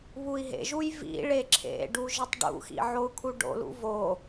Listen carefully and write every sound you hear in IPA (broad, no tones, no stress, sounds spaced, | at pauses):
β u i̯ ɦ ḛ ʒ u j v ḭ ɭ e ǁʰ ḛ ɖ u ʒ i tˤ ɖ ṵ x ḭ ʕ o u̯ kʰ u ɖ o̰ l ṵ v o